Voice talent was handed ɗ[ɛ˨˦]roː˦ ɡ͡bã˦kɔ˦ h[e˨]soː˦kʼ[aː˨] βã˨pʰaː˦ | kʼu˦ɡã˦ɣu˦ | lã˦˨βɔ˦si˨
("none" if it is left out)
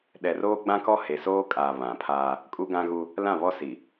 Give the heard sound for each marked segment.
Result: ɛ˨, e˨, aː˨

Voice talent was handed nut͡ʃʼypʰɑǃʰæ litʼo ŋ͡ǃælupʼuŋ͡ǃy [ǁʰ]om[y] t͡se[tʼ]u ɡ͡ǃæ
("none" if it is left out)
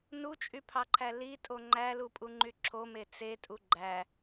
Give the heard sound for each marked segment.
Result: ǁʰ, e, tʼ

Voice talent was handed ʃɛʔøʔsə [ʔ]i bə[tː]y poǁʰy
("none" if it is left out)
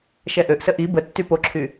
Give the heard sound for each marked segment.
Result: ʔ, tː

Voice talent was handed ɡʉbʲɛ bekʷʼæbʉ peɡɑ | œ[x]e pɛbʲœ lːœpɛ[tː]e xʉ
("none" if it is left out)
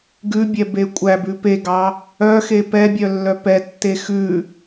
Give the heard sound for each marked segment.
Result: x, tː

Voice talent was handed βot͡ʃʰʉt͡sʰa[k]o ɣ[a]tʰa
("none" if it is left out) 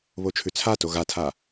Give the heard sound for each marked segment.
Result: t, a

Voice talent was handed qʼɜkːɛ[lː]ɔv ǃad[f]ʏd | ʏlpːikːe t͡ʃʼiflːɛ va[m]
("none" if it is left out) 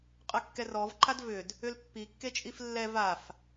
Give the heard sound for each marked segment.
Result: r, v, f

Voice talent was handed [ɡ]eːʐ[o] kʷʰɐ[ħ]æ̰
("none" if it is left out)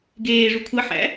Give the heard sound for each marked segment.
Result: ɡ, u, ħ

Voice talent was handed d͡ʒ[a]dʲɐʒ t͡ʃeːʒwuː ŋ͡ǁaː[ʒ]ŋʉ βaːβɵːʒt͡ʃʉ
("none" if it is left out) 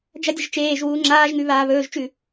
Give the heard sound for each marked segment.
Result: ɐ, ʒ

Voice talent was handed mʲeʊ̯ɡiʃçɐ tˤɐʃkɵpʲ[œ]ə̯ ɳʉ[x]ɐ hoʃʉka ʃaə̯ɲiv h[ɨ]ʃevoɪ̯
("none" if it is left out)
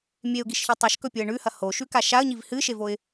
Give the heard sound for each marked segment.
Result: ɵ, h, ɨ

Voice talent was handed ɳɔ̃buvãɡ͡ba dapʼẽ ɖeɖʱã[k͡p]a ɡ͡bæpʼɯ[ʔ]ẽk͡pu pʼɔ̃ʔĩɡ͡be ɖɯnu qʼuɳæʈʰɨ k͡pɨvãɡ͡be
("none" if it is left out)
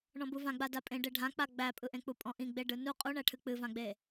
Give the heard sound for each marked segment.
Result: k͡p, ʔ

